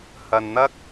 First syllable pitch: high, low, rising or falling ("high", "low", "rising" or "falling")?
low